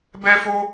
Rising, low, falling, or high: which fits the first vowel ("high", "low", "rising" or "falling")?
high